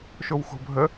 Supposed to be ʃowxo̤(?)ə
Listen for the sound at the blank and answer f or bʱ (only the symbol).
bʱ